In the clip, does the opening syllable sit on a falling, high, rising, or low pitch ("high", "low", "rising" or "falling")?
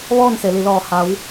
falling